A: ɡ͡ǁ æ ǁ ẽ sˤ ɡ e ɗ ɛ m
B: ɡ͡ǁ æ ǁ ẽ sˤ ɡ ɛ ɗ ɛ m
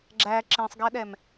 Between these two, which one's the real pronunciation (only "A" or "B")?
B